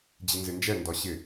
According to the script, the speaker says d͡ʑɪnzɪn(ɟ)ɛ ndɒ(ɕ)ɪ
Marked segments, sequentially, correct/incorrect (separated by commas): incorrect, correct